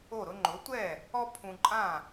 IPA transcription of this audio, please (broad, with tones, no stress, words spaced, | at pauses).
o˥˩ɾʊ˥ ŋ͡ǃʊ˩˥tʷɛ˥˩ | ɔ˥ pʰũ˧ ǃʼã˥˩